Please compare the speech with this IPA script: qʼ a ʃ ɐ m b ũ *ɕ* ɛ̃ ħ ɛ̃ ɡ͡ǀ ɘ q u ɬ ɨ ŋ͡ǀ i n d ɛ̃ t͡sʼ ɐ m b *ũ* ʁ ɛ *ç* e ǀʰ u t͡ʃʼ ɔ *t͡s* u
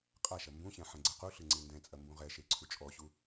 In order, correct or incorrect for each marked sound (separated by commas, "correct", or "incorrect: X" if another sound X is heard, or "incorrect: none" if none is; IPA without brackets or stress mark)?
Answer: correct, correct, incorrect: ʃ, incorrect: ɕ